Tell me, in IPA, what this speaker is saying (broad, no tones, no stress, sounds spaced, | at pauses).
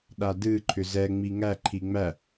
ɗ a d ɨ ǃʰ ʏ z ɛ ŋ͡m i ŋ æ ǃʰ i ŋ͡m æ